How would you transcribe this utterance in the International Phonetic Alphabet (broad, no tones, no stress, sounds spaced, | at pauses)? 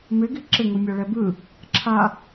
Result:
m ɪ ɡ i ǁ ɪ ŋ u mʲ a ɭ ɛ b ɯ | ǁʰ a